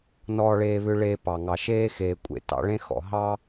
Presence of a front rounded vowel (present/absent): present